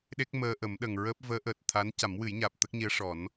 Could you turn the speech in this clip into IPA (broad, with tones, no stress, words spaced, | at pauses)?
ɗe˦˥k̚məː˧ʔə˨˩˦m ɗə˨˩ŋɹəː˦˥p̚ vəː˧˥ʔəː˨˩t̚t̪ʰa˧˥n ca˨˩˦mwɨ˨˩˦jɲaː˨˩p̚ t̪ə˦˥k̚ɲi˧˥ə̯ʂɔ˨˩˦n